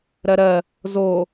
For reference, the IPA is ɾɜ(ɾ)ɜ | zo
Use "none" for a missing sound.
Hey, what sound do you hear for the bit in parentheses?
ɾ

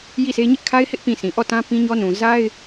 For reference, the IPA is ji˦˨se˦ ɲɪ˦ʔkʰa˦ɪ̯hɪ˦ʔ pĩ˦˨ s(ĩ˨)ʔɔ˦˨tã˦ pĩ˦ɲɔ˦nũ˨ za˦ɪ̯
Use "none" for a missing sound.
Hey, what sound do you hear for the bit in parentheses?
ĩ˨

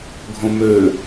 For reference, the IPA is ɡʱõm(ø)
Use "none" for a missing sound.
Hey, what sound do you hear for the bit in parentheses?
ø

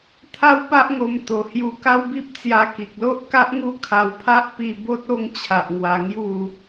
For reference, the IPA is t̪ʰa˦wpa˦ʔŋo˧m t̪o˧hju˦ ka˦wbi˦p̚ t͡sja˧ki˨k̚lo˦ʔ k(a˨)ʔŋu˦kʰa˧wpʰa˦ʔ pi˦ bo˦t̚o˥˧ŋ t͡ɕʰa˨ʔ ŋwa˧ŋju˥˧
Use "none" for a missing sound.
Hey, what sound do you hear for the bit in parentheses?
a˦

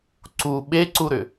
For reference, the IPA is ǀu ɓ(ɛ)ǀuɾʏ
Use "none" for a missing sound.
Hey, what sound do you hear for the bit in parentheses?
e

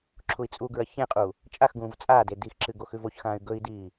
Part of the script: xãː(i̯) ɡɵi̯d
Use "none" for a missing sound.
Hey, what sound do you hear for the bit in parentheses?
y̯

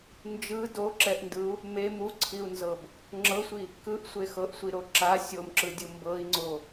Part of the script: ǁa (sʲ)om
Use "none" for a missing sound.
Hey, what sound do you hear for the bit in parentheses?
sʲ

